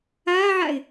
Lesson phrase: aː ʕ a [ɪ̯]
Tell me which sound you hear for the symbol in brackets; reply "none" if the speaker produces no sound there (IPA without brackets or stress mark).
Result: ɪ̯